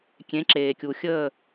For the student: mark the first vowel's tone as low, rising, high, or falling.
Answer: rising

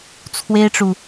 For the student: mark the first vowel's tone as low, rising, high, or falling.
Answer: high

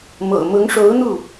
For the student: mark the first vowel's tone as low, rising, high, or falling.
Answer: low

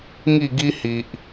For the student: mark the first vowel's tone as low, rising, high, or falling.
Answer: falling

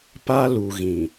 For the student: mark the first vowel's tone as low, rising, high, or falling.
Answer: high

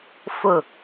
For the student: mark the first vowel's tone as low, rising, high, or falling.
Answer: low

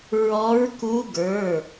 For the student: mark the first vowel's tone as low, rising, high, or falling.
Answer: rising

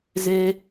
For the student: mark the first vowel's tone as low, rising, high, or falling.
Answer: high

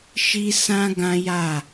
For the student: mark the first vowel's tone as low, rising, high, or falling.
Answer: high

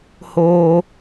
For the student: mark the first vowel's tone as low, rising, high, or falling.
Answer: high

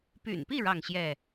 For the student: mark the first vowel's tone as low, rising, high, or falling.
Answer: low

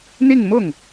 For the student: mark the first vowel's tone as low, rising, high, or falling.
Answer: falling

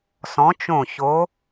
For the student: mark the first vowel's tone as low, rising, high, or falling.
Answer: rising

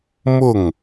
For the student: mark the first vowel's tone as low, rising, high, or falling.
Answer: falling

